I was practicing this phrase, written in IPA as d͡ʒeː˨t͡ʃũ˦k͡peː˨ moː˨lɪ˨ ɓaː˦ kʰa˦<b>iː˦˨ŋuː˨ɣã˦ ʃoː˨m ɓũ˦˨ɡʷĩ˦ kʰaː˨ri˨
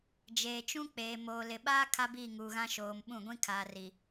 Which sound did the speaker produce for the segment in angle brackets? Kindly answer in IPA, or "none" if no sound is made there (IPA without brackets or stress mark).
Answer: b